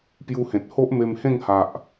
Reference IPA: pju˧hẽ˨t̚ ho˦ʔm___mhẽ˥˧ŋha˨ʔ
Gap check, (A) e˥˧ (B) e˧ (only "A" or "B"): B